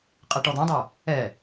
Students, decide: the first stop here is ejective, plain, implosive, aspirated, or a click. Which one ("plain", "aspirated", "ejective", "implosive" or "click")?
ejective